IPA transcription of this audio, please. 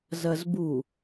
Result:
zɐzbu

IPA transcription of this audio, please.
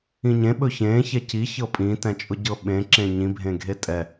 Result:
ĩɲẽ ɓɵçẽ çɛci çɤpʼĩ tɛ̃t͡ʃʼʊɟɤɓẽ ǁẽɲĩ bʱẽɡʱetʼɛ

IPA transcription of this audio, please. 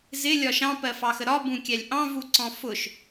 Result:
zɪ lʲɒʃɑ̃ pɜfɑxəɾɒ bũkʲælʲʔɑ̃ vuǀɔ̃fʊʃ

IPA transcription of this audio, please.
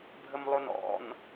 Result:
bʱəmlˠonɔ̰n

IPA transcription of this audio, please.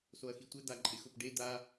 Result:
soɐ̯xitʷɛ d̪aǃʼɪx ʊpɖe d̪a

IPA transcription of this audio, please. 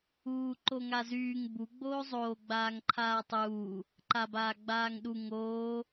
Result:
uː ǃoŋazyːŋ bu ɡ͡boːzˤoː ɡ͡baːŋǃʰaːtˤuː | ǃabaːɡ͡baːŋɗu ŋoː

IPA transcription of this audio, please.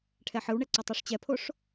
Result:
ʈʰɛħɯwɳɛ ǀotˤɤʂt͡ɕɛpʰoʂ

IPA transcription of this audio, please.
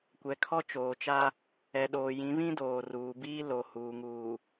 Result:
kʷɛ˨kʰɔ˦t͡ʃoː˨t͡ʃa˦ | ɛ˨ɗoː˨jĩ˨˦ βĩ˦doː˨ruː˨biː˦ lo˨huː˨ŋuː˨

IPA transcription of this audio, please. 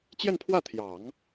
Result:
t͡ɕjɛ˥˧npʰwä˥˩t̪ʰjɑ˨˩˦ŋ

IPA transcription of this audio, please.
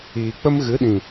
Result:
iː˨k͡pə˦mɣɨ˨˦ɗĩ˨

